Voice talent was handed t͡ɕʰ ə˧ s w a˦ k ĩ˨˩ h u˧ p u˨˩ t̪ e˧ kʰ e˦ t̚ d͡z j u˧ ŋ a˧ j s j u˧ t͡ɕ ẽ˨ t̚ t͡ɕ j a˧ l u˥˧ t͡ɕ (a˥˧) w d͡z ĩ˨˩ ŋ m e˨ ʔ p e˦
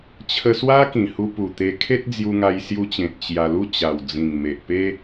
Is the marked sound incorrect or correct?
incorrect